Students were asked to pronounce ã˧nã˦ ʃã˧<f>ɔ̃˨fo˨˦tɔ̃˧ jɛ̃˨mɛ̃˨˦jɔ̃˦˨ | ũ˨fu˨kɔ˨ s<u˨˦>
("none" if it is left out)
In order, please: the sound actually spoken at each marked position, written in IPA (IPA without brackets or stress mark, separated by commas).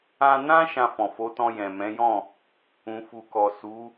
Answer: f, u˨˦